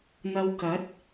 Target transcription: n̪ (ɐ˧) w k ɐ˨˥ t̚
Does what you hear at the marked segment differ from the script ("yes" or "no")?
no